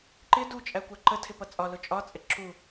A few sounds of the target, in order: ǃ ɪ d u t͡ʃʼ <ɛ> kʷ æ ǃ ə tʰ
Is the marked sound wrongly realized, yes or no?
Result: yes